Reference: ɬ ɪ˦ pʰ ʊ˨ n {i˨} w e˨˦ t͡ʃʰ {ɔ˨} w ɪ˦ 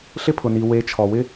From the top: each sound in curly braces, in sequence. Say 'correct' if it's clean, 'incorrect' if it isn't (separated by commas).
correct, correct